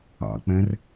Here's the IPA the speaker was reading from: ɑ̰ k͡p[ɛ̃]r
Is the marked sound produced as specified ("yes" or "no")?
yes